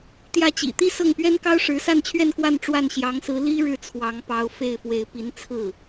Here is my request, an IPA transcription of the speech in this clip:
t̪ j ä˥˩ t͡ɕ ḭ˨˩ t̪ i˥˧ s ɤ˥˩ ŋ p ɥ ɛ˥ n k ɑ˥ ʊ̯ ʂ ɻ̩˧˥ s a˥˧ n t͡ɕʰ ɥ ɛ˥˧ n k w a˥˧ n ʈ͡ʂ w a˥˩ n ɕ j ɑ˧˥ ŋ s ɹ̩˧˥ l i˥ ɻ ɻ̩˥˩ t͡sʰ w ɑ˧˥ ŋ p ɑ˧˥ ʊ̯ f e˥˩ ɪ̯ f w e˧˥ ɪ̯ p i˧˥ n t͡sʰ ɹ̩˥˩

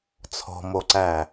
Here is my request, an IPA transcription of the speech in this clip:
t͡sʰ ɔ̤ m o ǀ æ

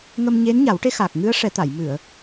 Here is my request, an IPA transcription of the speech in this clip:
ŋ ə˧ m ɲ e˧˥ n ɲ a˨˩˦ w ʈ e˧˥ x a˨˩ k̚ ŋ ɨ˧˥ ə̯ ʂ ɛ˨˩˦ t̪ a˨˩˨ j m ɨ˨˩˨ ə̯

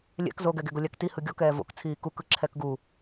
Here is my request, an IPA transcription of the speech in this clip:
lʲ ɛ̰ k z o ɡ ɛ ɡ e ɡ o lʲ a k t i h ɯ ɡʲ ɔ k ɛː v o̰ k t͡sʰ iː k u k ɯ ǁʰ ɛ k ɡ u

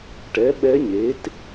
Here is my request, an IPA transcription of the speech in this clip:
ʈ ɛ˩˥ ɓ ɛ˧˥ ɲ e˩˥ t

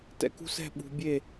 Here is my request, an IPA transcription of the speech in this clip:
t ɛ̰˧ k ṳ˦ s ɛ̤˦˨ ɓ ṳ˧ bʲ e˦˨

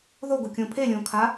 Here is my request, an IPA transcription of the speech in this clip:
ð o ɡ o kʲ õ pʰ e lʲ õ kʰ a

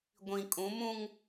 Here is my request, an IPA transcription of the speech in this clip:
ɡʷ ĩ˨ kʼ ũ˨˦ m ũ˦ ŋ

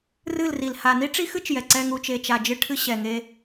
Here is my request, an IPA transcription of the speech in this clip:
r ɨ˦˨ l r i˨ l h a˨ n i˦ ʈ͡ʂ i˦ x ɨ˦ t͡ʃ j ɛ˨ ǀ ɛ˧ ŋ u˧ t͡ʃ e˧ t͡ʃ a˨ d͡ʒ ɨ˧ ʈʰ ɨ˧ ɕ ɛ˨ ŋ e˧

